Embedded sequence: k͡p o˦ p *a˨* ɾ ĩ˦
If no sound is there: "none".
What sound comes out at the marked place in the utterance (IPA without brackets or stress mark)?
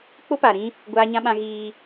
a˨